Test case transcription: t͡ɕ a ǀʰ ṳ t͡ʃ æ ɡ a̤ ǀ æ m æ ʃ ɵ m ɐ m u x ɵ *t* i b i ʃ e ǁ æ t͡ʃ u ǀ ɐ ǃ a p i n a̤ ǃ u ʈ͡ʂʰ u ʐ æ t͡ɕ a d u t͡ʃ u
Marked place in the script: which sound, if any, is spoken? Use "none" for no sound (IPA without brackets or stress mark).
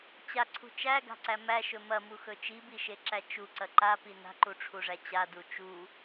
t͡ʃ